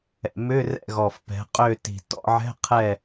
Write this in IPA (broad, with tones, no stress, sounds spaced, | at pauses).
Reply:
ɛ̰˨˩ m ʏ˧˥˧ r ɛ̰˦˨ ɣ ɔ˨˩ f p ɛ̤˩˧ qʼ ø˦˨ t i̤˨˩ t ɔ̰˧˥˧ ʕ ɛ̤˧˥˧ qʰ ɛ˦˨